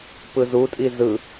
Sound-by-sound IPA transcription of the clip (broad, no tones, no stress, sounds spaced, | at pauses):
p ɯ z u tʼ i z ɯ